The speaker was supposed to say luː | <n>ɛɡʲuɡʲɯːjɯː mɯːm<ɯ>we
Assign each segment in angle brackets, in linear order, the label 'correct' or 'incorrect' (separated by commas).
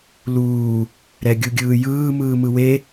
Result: incorrect, correct